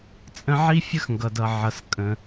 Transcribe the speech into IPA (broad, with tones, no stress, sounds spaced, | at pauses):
t͡sʼ ə̃˦ ʕ i˥ fʲ ə˥ x ŋ ɡ ʌ˩ d ʌ˩ ʕ ʌ˩ s kʼ ə̃˩